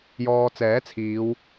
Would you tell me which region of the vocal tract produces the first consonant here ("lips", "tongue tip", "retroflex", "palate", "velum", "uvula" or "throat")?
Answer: palate